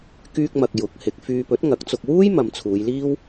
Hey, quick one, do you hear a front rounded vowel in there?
yes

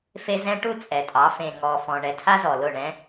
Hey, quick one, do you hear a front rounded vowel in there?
no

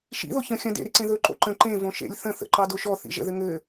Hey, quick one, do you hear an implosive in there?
no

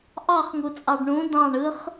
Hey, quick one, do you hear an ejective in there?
yes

